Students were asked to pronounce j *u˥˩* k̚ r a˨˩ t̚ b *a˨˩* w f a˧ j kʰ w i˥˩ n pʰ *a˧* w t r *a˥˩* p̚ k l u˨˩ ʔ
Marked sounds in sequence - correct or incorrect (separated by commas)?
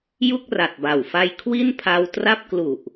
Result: correct, correct, correct, correct